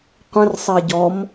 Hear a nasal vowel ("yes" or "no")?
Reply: yes